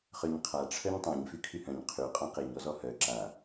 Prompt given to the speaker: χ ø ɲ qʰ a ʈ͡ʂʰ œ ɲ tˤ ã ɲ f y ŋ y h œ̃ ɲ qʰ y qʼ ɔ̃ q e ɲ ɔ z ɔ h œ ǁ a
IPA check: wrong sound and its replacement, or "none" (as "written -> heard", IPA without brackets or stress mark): ŋ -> kʰ